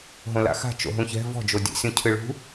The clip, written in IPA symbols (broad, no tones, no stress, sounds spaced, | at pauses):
ɦ õ l a̰ x a̤ t͡ʃ o̰ ɦ ũ ç ɛ̤ v ɔ̤ d͡ʒ o dʲ ɛ̰ sʲ õ cʰ ɨ ɭ ṳ